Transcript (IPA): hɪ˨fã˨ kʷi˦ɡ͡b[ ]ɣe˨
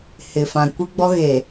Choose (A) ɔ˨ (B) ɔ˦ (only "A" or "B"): B